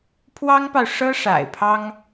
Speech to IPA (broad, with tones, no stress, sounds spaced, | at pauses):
pʰ w ɑ˥ ŋ p ɑ˨ ʊ̯ ʂ ɤ˥ ʂ a̰˨˩ ɪ̯ pʰ ɑ˥ ŋ